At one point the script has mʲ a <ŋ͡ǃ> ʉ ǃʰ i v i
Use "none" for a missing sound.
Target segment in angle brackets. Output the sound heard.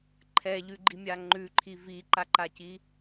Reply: ŋ͡ǃ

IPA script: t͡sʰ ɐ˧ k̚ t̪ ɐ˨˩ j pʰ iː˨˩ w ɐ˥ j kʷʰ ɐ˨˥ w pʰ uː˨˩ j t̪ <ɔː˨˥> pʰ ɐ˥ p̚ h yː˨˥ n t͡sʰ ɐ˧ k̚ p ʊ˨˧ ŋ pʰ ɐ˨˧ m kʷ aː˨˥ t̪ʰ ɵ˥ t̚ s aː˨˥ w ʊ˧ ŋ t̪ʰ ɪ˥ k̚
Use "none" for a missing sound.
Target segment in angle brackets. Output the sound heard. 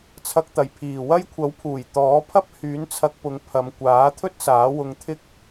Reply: ɔː˨˥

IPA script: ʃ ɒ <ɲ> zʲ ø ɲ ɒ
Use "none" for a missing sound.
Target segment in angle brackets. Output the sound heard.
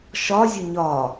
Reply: none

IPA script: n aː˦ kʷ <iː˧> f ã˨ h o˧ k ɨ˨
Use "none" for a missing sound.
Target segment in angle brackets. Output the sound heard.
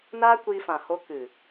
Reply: iː˧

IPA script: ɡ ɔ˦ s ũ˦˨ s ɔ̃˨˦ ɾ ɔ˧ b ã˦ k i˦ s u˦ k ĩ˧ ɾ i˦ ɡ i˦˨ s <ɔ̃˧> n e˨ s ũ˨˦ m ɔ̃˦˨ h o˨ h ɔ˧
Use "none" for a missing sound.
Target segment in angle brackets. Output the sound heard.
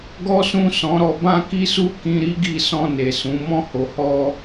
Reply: ɔ̃˧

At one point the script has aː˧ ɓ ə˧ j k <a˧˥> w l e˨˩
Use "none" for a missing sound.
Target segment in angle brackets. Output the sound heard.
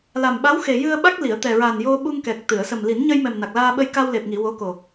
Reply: a˧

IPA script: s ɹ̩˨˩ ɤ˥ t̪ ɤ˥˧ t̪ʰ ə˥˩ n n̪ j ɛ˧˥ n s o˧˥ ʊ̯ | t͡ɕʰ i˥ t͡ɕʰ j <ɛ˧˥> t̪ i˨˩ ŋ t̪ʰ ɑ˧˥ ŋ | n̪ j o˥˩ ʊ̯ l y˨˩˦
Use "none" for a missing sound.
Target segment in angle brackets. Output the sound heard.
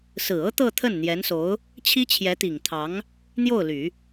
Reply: ɛ˧˥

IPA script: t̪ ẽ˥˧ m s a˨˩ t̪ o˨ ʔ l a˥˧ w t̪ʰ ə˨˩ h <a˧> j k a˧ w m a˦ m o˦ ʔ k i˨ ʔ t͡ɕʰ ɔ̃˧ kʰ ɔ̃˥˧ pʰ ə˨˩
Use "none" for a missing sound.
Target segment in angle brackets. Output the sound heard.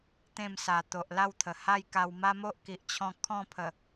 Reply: a˥˧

